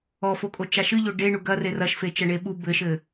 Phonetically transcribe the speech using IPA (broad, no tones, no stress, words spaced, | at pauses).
ɔfokʼot͡ʃa ʃɨʎo ɖeɳu ɡɐre rɐʃfet͡ʃɐɳe ɓu bɘʃɘ